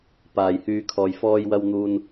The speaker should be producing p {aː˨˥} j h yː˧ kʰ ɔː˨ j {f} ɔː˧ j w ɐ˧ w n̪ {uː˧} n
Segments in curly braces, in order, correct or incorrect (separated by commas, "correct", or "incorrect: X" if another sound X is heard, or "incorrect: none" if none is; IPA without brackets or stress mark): incorrect: aː˨, correct, incorrect: uː˨